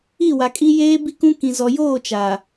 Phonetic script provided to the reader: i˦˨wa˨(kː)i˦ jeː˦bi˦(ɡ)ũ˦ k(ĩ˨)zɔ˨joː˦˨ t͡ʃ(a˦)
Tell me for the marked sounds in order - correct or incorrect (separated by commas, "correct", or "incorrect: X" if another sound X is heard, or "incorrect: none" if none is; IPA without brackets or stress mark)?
incorrect: kʼ, incorrect: k, correct, incorrect: a˨